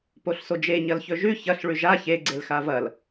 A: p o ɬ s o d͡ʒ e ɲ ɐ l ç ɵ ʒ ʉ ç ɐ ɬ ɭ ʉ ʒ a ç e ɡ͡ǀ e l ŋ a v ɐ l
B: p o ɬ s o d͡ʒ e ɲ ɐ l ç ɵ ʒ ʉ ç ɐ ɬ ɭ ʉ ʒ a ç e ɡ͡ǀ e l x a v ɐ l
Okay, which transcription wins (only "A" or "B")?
B